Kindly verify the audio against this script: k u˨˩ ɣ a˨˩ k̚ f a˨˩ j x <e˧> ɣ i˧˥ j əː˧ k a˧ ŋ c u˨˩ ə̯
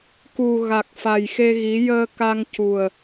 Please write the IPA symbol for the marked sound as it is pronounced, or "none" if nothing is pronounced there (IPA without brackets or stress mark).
e˧